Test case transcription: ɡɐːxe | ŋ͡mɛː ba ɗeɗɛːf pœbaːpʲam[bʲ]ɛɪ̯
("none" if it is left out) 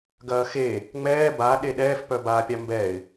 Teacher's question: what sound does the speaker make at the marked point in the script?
b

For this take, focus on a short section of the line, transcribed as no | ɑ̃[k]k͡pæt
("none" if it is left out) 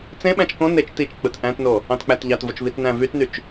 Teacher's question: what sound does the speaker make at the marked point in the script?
t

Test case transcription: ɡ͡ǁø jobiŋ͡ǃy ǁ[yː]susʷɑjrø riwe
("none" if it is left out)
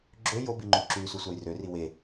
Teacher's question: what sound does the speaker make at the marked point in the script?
yː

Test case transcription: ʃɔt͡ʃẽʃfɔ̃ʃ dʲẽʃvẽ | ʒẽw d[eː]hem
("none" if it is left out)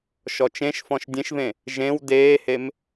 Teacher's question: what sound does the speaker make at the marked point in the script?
eː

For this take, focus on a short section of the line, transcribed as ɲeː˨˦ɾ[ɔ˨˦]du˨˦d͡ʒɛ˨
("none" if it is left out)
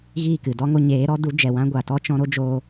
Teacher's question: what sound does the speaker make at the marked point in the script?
ɔ˨˦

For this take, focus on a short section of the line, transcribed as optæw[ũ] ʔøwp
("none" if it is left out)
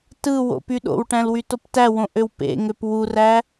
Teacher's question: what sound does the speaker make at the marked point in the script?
õ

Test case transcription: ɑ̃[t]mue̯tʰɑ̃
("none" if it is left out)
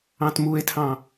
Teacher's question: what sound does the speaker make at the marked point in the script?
t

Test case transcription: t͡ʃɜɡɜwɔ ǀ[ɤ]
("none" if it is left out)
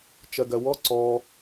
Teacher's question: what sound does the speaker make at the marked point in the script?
ɔ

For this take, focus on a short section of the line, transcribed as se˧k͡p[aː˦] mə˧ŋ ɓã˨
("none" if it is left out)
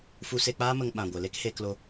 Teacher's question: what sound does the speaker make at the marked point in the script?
aː˦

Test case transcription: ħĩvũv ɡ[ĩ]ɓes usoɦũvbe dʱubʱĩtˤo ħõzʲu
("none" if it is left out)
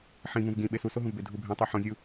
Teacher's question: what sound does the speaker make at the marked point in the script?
ĩ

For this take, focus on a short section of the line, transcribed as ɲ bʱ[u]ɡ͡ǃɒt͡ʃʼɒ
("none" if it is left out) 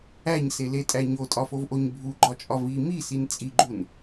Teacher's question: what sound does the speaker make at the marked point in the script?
u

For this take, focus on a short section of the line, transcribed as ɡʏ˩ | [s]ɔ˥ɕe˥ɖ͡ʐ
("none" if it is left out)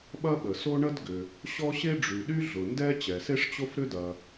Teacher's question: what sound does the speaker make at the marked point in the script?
ɕ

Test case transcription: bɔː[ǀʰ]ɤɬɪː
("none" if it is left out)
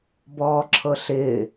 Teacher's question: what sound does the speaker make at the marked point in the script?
ǁʰ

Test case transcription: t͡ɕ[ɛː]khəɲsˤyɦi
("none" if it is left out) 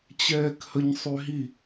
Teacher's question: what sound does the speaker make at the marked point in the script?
ɛː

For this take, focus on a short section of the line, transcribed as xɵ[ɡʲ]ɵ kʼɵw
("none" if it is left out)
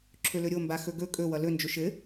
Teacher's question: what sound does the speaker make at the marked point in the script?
ɡ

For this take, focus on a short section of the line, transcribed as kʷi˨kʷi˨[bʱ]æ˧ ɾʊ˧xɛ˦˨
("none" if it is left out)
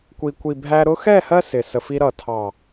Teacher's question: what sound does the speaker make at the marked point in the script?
bʱ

